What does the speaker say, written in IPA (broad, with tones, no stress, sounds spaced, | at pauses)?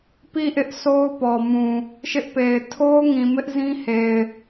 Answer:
p i˦˨ ʔ ɪ˦ ʔ s o˦ ʊ̯ p ɔ˨ m ũ˨ | ʃ ɪ˦ ʔ p e˨ ɪ̯ tʰ o˦ ʊ̯ ŋ ĩ˨ m ɪ˦ ʔ z ĩ˦ h e˨ ɪ̯